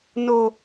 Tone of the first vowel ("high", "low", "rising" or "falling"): low